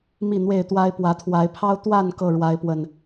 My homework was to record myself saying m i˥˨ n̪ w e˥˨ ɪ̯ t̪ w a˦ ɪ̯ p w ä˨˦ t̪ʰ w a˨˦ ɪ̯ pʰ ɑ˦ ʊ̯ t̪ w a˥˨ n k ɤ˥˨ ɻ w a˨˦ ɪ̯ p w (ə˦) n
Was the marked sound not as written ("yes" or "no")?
yes